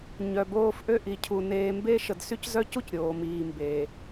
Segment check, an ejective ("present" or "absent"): absent